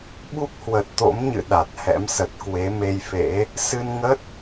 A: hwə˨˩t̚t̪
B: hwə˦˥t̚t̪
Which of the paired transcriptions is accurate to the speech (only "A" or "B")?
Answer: A